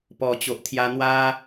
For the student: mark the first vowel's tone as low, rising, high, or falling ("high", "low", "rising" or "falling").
low